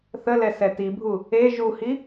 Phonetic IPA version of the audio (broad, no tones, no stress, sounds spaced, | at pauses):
θ ə l ɛ s ɛ t i bʱ u | e ʒ u h i